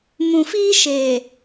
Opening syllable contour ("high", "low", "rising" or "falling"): low